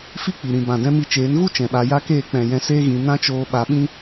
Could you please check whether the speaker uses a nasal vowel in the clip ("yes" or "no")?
yes